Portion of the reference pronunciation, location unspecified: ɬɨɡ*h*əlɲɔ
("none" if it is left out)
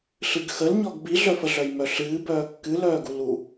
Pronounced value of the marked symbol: x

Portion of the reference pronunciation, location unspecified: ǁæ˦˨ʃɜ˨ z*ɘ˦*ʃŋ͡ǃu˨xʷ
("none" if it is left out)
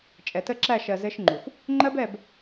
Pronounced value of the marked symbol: ɘ˦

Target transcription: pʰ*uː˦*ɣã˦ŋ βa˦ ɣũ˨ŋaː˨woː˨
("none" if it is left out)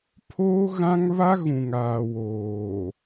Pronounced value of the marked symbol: oː˦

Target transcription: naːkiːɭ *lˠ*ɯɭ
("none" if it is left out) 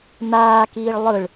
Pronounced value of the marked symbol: lˠ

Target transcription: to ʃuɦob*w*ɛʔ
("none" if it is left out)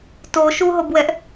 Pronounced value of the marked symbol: w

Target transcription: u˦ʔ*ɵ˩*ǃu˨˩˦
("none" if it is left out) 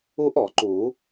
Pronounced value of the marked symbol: ɔ˩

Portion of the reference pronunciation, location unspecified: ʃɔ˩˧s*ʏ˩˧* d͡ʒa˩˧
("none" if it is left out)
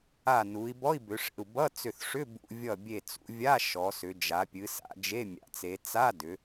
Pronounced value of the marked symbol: ʏ˩˧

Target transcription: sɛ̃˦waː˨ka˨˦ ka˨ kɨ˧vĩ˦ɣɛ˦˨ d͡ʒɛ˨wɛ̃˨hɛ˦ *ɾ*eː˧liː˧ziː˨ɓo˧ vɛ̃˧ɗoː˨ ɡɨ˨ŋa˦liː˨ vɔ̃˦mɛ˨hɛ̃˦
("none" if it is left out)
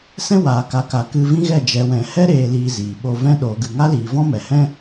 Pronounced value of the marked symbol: ɾ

